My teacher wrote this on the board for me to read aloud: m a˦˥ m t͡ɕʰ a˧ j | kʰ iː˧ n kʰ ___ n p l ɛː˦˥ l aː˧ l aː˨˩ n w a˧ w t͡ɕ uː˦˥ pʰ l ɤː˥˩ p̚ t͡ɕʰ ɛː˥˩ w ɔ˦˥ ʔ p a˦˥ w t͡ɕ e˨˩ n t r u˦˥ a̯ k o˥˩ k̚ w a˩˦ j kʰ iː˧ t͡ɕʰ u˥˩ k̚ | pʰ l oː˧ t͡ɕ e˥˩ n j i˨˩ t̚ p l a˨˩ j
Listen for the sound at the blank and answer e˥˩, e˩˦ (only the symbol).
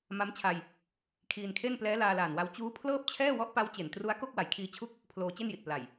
e˥˩